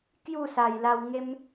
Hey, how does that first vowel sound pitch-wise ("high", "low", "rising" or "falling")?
falling